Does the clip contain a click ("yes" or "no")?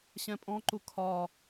yes